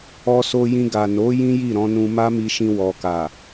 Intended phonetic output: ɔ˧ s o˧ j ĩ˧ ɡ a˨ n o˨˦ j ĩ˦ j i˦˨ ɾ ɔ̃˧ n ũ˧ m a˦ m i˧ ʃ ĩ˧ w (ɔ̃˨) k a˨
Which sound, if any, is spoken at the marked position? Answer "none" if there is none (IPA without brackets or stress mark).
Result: ɔ˨